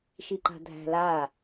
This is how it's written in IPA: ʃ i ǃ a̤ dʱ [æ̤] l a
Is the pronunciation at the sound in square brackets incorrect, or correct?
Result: correct